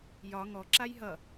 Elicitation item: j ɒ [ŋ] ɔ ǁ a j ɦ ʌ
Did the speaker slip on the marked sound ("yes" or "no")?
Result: no